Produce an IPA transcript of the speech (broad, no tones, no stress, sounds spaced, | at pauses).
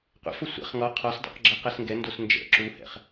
qʷ ḛ f o sʷ ɛ̰ χ ŋ ɔ qʰ ɔ s dˤ ɛ̰ q ɡ͡ǁ ɛ q ɛ s ŋ ɡ ɛ n d o s n d͡ʒ ɛ̰ ǁ u h ɛ̰ χ